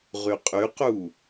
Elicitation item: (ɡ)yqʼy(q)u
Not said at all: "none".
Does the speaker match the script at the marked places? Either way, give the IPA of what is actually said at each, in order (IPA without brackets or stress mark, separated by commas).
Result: ʁ, q